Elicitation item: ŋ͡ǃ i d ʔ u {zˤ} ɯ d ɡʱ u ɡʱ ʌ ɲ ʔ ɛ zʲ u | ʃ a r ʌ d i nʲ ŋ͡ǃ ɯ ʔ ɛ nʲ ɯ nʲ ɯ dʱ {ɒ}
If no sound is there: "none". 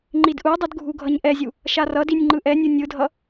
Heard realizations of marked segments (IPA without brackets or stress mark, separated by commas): dˤ, ʌ